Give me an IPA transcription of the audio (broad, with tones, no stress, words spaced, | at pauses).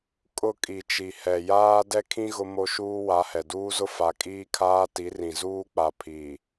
kʼʊ˦˨ kʼi˨ t͡ʃi˨hɛ˨ jaː˦ dɛ˦kʰĩ˦ ɣʊ˦mo˦ʃuː˦ wa˨˦hɛ˨duː˦zʊ˦ fa˨kʼiː˦kʰaː˦ ti˨˦rĩ˨ zuː˦k͡pa˨ pʰiː˨